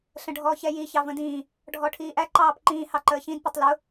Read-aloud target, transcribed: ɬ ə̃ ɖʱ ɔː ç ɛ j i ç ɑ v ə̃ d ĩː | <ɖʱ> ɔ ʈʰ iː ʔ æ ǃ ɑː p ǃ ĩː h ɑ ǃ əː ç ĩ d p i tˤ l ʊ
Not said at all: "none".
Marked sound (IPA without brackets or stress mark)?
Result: ɖʱ